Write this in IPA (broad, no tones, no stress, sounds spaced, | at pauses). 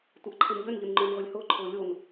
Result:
tʷ ɐ ʔ ǃʰ e m ʎ ø n ʎ ʊ n ŋ͡ǃ ʊː n ʁʷ ɪ lʲ h ʊː ǃʰ ʊː lʲ o n